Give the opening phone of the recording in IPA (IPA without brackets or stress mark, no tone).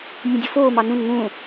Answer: nʲ